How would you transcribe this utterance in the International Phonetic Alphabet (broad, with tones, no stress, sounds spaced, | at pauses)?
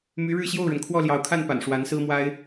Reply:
m y˧˥ ɻ ɻ̩˥˧ ɕ j o˥˩ ʊ̯ ɻ ə˩ n kʰ w ɔ˥˩ l j ɑ˧˥ ʊ̯ kʰ a˥˩ n p a̰˨˩ n ʂ w a˧˥ n s ɹ̩˥ m w a˥ ɪ̯